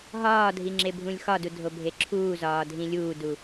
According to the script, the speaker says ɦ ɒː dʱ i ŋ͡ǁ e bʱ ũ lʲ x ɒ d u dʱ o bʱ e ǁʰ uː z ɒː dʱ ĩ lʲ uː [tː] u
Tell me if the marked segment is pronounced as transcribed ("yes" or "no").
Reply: no